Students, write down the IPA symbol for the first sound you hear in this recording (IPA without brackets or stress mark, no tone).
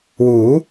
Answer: w